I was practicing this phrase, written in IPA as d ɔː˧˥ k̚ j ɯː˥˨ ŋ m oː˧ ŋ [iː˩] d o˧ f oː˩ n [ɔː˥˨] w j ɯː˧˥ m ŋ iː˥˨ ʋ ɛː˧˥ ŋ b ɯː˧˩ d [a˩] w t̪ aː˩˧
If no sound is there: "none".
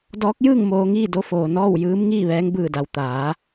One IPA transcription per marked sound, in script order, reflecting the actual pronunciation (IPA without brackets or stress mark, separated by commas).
iː˥˨, ɔː˥˨, a˩